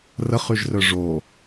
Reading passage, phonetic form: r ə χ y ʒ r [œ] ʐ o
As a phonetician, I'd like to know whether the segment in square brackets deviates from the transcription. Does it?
no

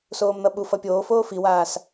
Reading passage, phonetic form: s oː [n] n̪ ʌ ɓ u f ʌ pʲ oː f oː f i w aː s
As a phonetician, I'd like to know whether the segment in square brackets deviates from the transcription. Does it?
yes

